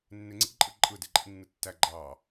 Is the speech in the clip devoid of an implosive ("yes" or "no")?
yes